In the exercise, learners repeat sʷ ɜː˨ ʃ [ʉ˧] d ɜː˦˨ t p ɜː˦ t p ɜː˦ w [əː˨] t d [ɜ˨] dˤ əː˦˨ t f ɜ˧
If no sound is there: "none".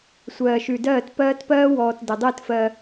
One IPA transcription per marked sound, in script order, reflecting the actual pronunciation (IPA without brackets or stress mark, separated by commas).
ʉ˨, ɔː˨, ɜ˨